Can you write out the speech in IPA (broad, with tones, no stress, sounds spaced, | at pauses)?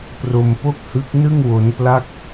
p r o˧ m p o˥˩ k̚ h ɯ˦˥ k̚ n ɯ˥˩ ŋ w o˦˥ n p l a˥˩ k̚